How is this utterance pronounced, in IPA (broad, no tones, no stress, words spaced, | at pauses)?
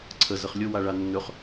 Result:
ǀʰə zəχlʲʊ waɭanːɵχ